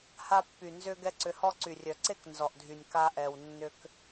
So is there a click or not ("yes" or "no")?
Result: yes